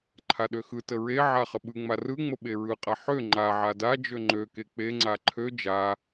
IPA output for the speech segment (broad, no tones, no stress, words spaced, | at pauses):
ǃʰaɗøxɯtə ɹeʕa χəɓɯŋ͡ma rɯŋ͡mə ɓeɹɯqʼa ħø ŋ͡ǃaʕa dad͡ʒø ŋ͡ǃø kek͡peŋ͡ǀa ǃʰø d͡ʒa